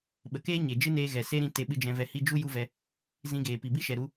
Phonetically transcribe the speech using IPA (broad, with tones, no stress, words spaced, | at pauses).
ɓə˨keː˦ ɲe˨ d͡ʒɨ˦neː˧ ɣɛ˨ se˦ɾĩ˧ te˧ɓɨ˧d͡ʒɛ̃˧ vɛ˧hi˦ d͡ʒu˦ ju˦vɛ˧ | zĩ˧ɡeː˨ pi˨bi˦ʃɛ˨ ɾu˧